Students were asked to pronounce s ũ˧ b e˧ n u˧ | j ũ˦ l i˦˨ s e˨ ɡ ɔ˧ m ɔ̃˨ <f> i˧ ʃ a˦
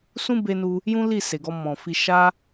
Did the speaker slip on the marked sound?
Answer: no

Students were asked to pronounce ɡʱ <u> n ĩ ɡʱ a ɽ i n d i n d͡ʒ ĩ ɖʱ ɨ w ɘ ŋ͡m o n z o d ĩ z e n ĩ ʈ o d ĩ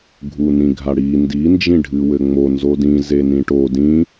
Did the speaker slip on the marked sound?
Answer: no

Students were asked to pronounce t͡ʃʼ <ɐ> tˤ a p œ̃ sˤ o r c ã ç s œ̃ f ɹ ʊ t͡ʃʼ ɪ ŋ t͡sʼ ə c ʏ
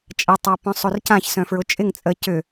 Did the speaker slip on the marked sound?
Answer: no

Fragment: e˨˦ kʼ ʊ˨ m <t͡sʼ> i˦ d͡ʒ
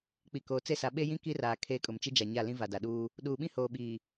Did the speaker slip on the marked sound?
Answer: yes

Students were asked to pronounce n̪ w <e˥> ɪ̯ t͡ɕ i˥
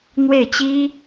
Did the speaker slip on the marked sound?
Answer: yes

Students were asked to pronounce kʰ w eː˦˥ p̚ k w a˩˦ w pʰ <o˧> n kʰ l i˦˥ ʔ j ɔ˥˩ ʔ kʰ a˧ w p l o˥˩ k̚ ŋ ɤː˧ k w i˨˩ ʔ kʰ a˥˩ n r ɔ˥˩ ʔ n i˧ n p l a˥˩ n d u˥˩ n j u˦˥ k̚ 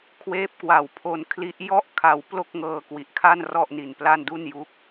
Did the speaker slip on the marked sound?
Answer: no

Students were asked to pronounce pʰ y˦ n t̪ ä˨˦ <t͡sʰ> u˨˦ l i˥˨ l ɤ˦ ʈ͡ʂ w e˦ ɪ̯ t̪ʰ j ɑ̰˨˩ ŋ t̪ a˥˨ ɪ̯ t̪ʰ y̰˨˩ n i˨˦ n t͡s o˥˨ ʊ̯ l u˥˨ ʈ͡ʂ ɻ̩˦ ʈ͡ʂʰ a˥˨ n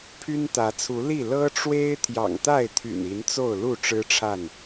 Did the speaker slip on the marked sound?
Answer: no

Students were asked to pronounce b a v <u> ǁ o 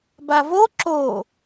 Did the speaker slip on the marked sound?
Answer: yes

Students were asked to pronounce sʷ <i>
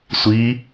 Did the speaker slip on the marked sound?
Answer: no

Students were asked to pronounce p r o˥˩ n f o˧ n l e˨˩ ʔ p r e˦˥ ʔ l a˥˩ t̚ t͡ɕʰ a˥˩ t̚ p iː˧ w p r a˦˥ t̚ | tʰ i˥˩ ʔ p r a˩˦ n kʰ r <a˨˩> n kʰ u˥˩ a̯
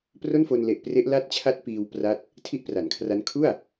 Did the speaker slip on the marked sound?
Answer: yes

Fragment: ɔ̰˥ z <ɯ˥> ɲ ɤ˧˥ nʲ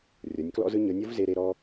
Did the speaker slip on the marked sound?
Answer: no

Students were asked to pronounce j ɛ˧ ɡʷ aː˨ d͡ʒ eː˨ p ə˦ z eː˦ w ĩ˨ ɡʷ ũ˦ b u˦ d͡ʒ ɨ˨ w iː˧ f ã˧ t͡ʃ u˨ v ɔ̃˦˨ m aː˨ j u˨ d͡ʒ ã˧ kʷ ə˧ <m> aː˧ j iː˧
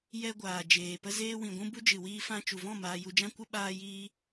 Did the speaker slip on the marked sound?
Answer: yes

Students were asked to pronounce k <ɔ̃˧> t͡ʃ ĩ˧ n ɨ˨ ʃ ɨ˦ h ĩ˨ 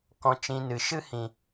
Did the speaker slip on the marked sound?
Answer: no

